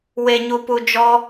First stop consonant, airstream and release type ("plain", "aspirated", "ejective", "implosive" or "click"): plain